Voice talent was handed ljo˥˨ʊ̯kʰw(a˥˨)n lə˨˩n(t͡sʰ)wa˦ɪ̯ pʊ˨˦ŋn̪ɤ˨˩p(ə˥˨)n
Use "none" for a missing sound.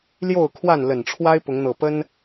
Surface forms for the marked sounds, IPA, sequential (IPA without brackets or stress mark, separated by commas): a˥˨, ʈ͡ʂʰ, ə˦